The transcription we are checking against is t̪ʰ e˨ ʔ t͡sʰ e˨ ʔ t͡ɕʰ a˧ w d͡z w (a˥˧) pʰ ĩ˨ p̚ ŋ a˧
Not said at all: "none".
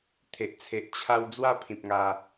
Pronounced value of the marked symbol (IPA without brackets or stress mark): a˥˧